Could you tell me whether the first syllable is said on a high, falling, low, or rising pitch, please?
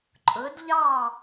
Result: rising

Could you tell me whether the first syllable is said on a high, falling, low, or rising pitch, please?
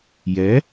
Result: rising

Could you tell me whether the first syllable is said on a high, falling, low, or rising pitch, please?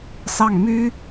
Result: falling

